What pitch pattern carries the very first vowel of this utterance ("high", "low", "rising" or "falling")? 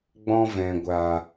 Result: high